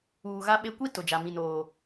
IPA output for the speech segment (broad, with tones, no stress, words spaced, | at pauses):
uː˨ɣa˦ɓe˦ kʷi˦ tʊ˨d͡ʒa˨ mĩ˨noː˨